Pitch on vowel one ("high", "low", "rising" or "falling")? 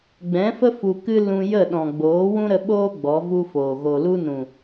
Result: rising